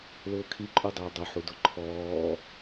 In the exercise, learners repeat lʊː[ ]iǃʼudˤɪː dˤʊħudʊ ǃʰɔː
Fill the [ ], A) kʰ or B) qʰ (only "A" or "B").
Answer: A